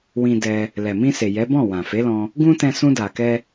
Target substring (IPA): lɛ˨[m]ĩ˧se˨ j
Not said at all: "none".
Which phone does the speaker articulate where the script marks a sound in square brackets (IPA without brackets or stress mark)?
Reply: m